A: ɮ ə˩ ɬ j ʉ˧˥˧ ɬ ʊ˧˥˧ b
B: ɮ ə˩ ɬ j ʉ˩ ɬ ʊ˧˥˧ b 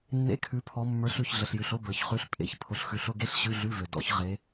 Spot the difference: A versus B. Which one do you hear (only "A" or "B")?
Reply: B